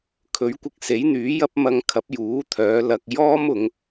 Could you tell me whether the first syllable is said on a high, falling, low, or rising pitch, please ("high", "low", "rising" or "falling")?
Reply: rising